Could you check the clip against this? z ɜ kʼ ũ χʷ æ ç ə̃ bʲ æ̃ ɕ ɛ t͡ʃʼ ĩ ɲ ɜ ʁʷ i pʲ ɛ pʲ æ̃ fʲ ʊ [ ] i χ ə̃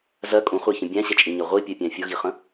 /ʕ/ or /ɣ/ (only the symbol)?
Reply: ɣ